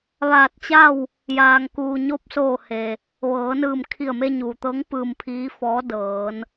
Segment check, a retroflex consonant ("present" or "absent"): absent